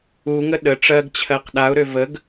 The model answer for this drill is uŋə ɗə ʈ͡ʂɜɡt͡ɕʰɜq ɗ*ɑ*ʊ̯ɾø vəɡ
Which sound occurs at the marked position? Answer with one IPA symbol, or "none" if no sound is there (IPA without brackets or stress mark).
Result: a